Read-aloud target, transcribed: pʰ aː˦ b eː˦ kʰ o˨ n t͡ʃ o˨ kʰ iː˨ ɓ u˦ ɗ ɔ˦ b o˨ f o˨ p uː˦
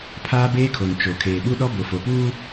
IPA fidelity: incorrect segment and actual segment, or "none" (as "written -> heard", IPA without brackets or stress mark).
iː˨ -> eː˨